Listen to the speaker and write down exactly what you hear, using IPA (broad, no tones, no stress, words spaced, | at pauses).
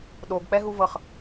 ɗoɡk͡pɛɦuvɤχ